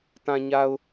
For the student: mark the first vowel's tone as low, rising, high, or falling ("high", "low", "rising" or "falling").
low